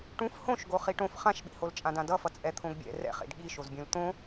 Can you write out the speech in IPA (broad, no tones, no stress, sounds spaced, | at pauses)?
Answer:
ʈ ũ f h õ ʃ ɡ o χ i ʈ õ f χ ã ʃ ɓ ḭ h o l t͡ʃʼ ã d ã d ʌ f ʌ t͡sʼ ɛ t̪ʰ õ ɡ bʲ ɛ̰ r ɛ̰ χ ḛ d ɠ i ʃ o z bʲ ũ l t̪ õ